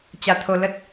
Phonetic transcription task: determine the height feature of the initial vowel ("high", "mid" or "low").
low